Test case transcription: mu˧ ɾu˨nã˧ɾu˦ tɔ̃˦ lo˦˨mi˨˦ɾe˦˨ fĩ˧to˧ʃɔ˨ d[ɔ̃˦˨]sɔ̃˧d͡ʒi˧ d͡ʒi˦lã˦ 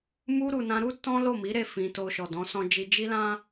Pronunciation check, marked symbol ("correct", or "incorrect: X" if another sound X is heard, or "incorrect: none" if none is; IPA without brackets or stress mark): incorrect: ɔ̃˨˦